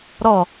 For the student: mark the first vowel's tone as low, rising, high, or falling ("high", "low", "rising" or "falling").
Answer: falling